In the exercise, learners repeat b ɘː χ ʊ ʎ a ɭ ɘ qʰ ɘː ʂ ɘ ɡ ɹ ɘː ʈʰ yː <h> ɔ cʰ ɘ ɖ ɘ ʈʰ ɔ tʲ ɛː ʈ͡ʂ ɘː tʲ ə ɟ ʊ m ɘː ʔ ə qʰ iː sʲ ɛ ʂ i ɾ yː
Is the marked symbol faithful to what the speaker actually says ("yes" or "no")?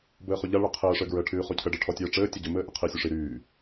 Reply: no